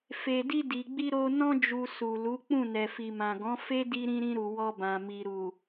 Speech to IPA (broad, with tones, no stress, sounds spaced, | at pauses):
f e˨ d i˧ d i˨ ɡ͡b i˧ ɾ o˧ n ɔ̃˧ d͡ʒ u˨ s u˨ l u˨˦ k͡p ũ˦˨ n ɛ˨ f i˨ m ã˨ ɡ ɔ̃˨˦ f e˦ d i˧ ɾ ĩ˧ ɾ ĩ˧ ɾ u˨ w ɔ˧ b ã˨ m i˨ ɾ u˨